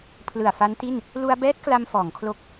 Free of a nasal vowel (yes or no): yes